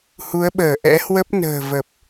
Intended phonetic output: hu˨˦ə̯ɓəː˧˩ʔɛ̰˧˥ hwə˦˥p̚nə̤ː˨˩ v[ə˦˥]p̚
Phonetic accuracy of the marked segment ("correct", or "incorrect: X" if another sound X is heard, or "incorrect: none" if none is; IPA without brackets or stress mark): incorrect: ə˨˩